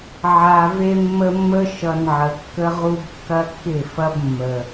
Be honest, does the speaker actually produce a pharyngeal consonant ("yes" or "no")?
yes